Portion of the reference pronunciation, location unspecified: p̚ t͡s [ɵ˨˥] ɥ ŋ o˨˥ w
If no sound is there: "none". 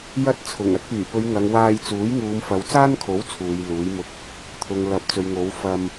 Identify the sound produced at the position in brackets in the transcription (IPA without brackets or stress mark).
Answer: ɵ˨˧